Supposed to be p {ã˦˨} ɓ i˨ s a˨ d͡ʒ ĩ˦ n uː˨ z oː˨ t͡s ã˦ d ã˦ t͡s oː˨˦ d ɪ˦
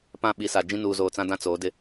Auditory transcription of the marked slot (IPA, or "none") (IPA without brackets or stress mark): ã˦˨